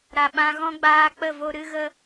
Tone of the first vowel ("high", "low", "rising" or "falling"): low